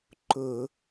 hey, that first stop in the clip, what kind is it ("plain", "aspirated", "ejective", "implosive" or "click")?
click